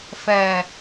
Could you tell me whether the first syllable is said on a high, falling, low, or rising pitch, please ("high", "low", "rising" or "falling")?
low